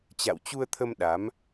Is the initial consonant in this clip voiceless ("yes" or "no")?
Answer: yes